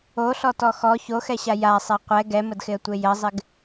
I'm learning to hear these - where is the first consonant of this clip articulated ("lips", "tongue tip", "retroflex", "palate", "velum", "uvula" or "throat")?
tongue tip